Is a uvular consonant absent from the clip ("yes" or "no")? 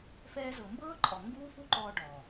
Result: yes